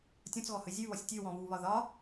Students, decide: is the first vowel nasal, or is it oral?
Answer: nasal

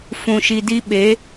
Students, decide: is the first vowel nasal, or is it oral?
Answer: nasal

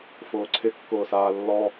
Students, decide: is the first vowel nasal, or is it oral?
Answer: oral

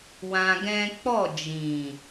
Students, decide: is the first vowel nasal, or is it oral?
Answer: nasal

